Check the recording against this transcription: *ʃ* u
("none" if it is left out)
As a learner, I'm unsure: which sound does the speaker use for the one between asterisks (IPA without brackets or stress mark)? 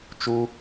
t͡ʃ